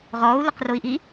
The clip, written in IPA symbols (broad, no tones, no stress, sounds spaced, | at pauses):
ʁ ɔː u̯ l ɘ q r o i̯ ʔ i